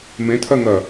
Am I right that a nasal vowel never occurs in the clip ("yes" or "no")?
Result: no